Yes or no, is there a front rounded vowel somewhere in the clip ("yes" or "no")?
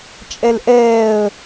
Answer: no